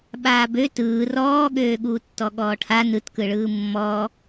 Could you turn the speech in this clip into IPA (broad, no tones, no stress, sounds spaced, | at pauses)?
ɓ aː b ø t ɯː r ɔː ɠ øː ɠ uː tː ɔ ɠ ɔː ʈʰ a n ɯ t k ɯ ɭ ɯː mː ɔ